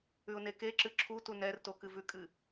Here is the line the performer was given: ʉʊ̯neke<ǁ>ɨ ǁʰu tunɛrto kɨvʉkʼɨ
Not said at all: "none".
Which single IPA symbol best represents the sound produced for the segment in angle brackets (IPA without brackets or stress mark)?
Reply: ǁ